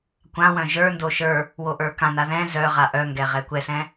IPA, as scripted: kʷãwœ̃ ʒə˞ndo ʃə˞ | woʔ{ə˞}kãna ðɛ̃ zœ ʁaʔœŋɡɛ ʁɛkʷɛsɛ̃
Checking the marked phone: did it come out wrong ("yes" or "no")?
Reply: no